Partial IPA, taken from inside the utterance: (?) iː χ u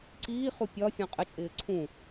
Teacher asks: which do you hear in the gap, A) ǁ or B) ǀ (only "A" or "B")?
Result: B